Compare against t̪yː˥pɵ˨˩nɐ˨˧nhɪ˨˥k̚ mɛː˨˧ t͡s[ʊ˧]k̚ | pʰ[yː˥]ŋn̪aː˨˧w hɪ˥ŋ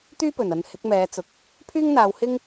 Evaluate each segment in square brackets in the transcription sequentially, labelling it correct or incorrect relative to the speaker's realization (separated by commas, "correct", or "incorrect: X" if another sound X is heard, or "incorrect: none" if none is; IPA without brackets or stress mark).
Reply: incorrect: ʊ˨, correct